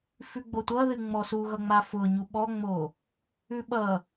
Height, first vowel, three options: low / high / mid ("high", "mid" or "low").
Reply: high